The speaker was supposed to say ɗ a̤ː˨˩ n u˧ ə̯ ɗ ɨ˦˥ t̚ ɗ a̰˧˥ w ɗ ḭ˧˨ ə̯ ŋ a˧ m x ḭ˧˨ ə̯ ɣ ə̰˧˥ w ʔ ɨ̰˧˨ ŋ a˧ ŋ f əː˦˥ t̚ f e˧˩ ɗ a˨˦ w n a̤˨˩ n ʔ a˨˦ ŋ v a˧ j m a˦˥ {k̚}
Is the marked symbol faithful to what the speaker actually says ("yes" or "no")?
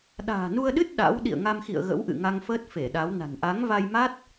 no